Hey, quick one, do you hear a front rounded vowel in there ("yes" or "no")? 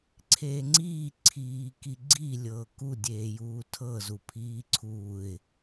no